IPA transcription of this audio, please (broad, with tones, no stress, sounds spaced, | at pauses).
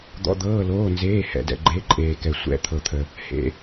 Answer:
d̪ ɔ̰˩˧˩ d̪ ɤː˩˧˩ l oː˩˧˩ n z eː˩˧˩ h ɛ̰˩ d ɛ̰˩ ɡ͡ǃ e˩˧˩ ǃʼ eː˩ k ɛ˩ sʷ ɛ̰˩˧˩ t̪ʰ ɤ˩ t̪ʰ ə˩ | h ḛ˩